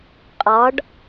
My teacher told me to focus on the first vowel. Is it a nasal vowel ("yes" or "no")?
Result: no